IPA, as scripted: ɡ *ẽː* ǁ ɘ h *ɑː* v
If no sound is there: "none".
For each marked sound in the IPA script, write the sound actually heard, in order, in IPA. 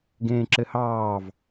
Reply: ẽː, ɑː

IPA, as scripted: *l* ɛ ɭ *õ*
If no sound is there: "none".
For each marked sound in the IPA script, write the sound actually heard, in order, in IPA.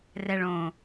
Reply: r, õ

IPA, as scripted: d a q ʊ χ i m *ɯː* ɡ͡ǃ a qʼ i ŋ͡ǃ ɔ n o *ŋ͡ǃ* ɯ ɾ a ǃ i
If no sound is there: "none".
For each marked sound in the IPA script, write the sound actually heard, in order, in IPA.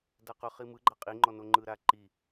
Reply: ɯ, ŋ͡ǃ

